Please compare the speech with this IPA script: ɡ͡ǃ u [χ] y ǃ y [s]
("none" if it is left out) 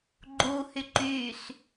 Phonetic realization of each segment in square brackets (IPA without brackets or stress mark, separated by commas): h, s